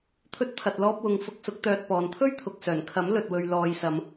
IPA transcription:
t̪ʰ ɵ˧ t̚ pʰ ɐ˨ t̚ l ɔː˧ p̚ w ʊ˨ ŋ f ʊ˧ k̚ s ʊ˨˥ k̚ t̪ œː˨ t̚ p ɔː˨ n t̪ʰ ɵ˥ ɥ t̪ʰ ʊ˨ k̚ s œː˨˩ n kʰ ɐ˨˥ m l ɵ˨ t̚ w ɵ˨ ɥ l ɔː˨ j s ɐ˨˧ m

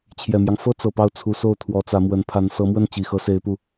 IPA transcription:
t͡ɕʰ j ɛ˨˩ m j ɑ˦ ŋ f ɤ˥ t͡s ɤ˨˩ p ɑ˥˩ ʊ̯ t͡sʰ u˧˥ s o˥˩ ʊ̯ t̪ʰ w ɔ˧˥ t͡s ä˧˥ m w ə˧˥ n pʰ a˧˥ n s ɤ˧˥ m w ə˥˩ n t͡ɕ i˨˩ x ɤ˧˥ s e˧˥ ɪ̯ p u˥˩

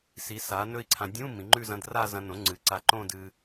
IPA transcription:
s i˩˥ s a˩˥ n ɵ˥˧ i̯ ǀʰ ã˧ dʲ ũ˧˥˧ m ĩ˩˥ ŋ͡ǃ ʉ˥˧ z ɐ̃˧˥˧ d r a˥˧ z ɐ̃˧ n õ˩˥ ŋ͡ǀ ɨ˩˥ ǀ a˧ ǃ õ˥˧ d ɨː˧

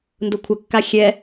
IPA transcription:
n d ʊ kʷʰ ə kː a xʲ ɛ

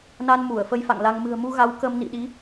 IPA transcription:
n a˧ n m u˧˩ ə̯ f ə˧ j f a̰˧˨ ŋ l a˧ ŋ m ɨ̤˨˩ ə̯ m u˧ ɣ a˨˦ w k ə˧ m n ḭ˧˨ ɗ i˨˦

